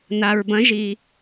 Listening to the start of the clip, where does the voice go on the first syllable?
low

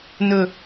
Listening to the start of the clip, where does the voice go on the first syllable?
low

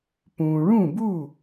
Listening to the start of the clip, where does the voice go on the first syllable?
low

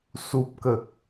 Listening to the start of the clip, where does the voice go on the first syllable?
low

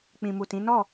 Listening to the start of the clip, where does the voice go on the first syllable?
low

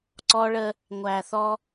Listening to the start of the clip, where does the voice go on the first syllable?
high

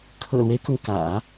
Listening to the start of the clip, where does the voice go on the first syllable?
low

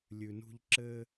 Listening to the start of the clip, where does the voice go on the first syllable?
low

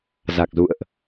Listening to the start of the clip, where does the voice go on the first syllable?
low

